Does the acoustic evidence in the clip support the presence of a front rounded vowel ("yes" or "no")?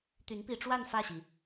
yes